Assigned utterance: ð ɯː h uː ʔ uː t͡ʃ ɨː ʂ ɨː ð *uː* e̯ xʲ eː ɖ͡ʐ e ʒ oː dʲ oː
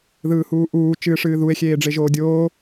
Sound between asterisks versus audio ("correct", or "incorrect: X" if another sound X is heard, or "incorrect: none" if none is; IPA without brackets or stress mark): incorrect: u